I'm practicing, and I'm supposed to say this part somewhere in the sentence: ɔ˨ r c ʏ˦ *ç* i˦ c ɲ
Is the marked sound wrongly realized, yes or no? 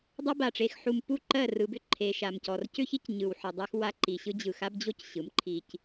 no